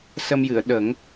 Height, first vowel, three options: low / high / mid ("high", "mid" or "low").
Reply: mid